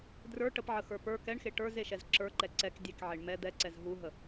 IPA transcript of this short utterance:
drə˞ ʈəpʕəxə˞ pə˞ kɛɳxe ʈə˞zeʃɛz ǁə˞ǃɛ ǀɛk dʲekʕeɳ mɛ d̪ɛǀɛz ɦuɦə

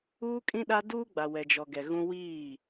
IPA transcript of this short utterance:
uː˦kʼĩ˦ɗa˦ duː˦ɡ͡ba˨ wɛ˨d͡ʒɔ˨ ɡɛ˨ɣũ˦ wiː˦˨

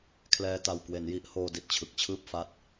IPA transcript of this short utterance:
kʰlɛː˧ta˨˩w kwe˩˦nji˦˥ʔhoː˧ di˨˩t̚t͡ɕʰɯ˨˩k̚t͡ɕʰɯː˥˩p̚fa˦˥t̚

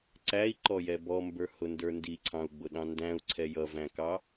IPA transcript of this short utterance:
ǀæi̯ǃɔjɛ bɔmbə˞hʊndə˞ ndiǀʰɑ̃u̯ɡ͡bʊɗɑ̃ ndæ̃u̯ǀʰɛ jʌvæ̃kɑ

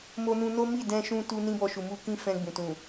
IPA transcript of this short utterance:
mo˧nũ˧no˦ mi˦˨dɛ̃˧ʃũ˧ tu˧ nĩ˦bɔ˧ ʃu˨mu˧ kĩ˦fɛ̃˧ɡ͡bũ˨ tũ˨

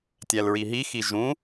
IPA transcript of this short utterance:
tʲælɹiɦixi ʒũ

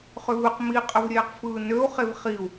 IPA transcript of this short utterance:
χʏvɨq miqʼəv ɾʲeːqfɯːnøu̯ χevχiu̯

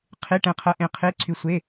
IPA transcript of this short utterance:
qʰe˧˥˧ʈɛ̃˧qʰɐ˧ʔẽ˧ qʰe˧˥˧ǀʰy˧sʷe˧˥˧

